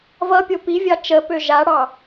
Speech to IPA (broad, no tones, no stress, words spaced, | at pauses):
vʌpʲo pi vʲɑt͡ʃəpø ʒaɽɑ